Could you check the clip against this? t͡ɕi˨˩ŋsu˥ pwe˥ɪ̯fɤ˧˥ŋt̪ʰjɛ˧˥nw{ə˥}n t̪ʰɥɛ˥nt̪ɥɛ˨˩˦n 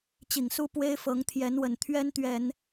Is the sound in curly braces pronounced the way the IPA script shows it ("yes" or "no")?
no